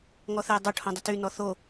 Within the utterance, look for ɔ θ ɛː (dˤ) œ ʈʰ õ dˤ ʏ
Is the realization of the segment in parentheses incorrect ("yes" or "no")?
no